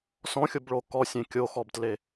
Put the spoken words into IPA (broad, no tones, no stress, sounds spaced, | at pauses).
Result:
s ɔ̃ xʲ o b ɭ o k ɔ sʲ ẽ kʲ o x ɔ b t l e